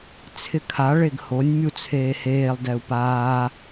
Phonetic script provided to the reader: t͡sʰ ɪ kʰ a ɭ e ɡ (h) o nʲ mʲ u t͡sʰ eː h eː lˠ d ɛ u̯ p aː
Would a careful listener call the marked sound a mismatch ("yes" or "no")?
no